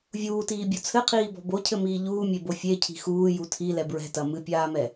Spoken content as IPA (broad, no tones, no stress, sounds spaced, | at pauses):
vʲ uː t iː bʲ o t͡sʰ ɘ qʰ iː b ɔ̤ b o cʰ ɘ m iː ʎ uː mʲ e b o fʲ e cʰ i̤ x uː j u tʰ i l ɛ b ɹ ɛ̤ t ɐ m ɨ pʲ aː m ɛ